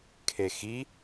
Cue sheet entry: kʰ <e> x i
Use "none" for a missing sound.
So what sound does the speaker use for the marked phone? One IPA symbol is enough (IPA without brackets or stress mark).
e